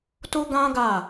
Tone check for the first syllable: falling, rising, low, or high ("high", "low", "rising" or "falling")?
high